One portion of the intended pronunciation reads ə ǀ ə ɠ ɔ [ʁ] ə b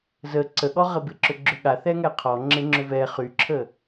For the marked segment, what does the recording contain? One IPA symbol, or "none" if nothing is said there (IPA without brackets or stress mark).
ʁ